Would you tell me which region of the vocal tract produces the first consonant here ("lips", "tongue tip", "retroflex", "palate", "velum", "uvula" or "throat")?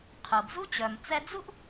uvula